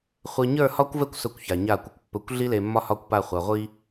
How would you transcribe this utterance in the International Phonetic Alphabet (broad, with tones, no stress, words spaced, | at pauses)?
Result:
χʷe˨ ɲə˞˦˨ hɒ˦kʷvɛ˦kʷ sɵ˦˨kʷça˨ɲa˦˨kʷɘ˦kʷ pːɵ˨kʷɮi˦le˨ mːɒ˦hɒ˦˨kʷpa˦˨ χʷa˨ʁʷi˦